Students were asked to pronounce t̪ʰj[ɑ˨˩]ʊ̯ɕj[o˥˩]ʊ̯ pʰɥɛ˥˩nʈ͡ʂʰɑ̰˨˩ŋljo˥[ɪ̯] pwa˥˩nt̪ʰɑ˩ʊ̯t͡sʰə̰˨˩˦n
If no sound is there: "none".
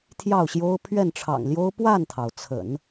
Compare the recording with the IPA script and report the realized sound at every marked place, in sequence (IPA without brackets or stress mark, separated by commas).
ɑ˥˩, o˥, ʊ̯